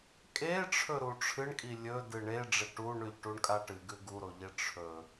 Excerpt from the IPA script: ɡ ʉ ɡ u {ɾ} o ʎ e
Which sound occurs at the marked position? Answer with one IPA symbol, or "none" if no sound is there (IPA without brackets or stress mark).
ɾ